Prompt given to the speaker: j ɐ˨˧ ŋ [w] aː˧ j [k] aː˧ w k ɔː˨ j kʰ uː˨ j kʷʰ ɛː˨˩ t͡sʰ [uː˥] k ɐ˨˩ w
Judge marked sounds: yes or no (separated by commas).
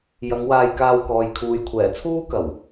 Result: yes, yes, yes